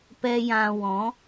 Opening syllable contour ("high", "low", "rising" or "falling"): high